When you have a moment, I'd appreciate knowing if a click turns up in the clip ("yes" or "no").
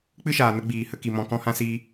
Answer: no